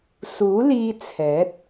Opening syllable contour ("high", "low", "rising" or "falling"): rising